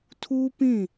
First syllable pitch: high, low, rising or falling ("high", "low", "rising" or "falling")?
high